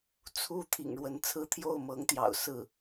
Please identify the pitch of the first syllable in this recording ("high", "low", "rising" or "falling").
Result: high